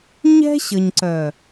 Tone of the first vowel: high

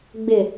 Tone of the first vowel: low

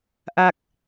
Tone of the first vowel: falling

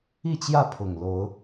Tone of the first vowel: falling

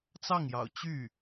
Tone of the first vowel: falling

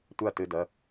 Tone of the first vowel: falling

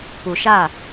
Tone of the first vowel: low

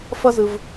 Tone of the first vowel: high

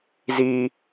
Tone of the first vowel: high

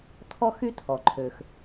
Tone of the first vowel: high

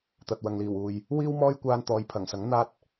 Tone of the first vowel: low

